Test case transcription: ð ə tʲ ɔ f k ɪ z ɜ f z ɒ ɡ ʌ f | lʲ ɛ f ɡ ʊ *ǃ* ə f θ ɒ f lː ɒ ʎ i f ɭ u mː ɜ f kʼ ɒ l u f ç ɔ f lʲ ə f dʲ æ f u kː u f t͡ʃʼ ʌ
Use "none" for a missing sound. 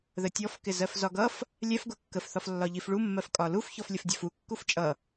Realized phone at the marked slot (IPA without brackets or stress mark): kː